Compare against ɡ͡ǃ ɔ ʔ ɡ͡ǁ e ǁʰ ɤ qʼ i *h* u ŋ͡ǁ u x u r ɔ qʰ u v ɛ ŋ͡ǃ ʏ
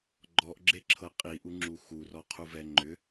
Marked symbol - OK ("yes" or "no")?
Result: no